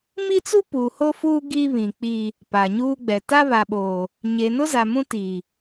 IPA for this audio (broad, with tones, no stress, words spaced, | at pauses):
mi˦t͡su˦puː˨ ho˦fuː˦ ɡi˦βĩ˨ k͡piː˦ | pa˨ɲuː˦ɡ͡bɛ˨ ta˦βa˨ɓoː˨ | ɲe˨nʊ˦za˨ mũ˦tiː˨